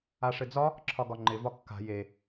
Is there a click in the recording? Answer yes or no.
yes